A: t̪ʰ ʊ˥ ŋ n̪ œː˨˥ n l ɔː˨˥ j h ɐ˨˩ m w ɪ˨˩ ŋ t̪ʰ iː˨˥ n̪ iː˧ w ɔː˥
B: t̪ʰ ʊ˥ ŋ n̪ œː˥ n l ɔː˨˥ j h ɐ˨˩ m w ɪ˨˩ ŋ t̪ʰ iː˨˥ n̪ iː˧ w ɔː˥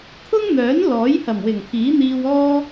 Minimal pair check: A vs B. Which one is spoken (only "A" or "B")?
A